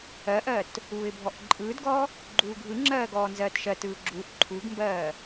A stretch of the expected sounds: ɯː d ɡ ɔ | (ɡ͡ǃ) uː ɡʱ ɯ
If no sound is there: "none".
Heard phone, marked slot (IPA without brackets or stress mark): ɡ͡ǃ